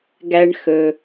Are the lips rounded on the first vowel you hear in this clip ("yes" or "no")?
no